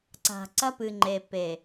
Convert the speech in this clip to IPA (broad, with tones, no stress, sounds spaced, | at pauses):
ǀ a̤˨ ǀ ɐ˦ p ɨ˨ ŋ͡ǃ e˨ p e˨